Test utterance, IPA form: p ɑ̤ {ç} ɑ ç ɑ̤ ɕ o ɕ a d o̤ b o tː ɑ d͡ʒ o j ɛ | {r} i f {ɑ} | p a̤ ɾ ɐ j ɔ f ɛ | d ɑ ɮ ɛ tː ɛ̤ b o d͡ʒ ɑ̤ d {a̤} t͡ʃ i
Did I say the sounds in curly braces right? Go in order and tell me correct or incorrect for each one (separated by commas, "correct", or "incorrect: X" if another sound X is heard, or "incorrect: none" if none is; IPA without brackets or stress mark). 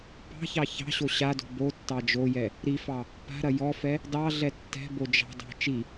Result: correct, incorrect: ɾ, correct, incorrect: ɑ̤